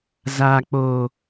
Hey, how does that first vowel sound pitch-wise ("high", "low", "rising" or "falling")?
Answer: low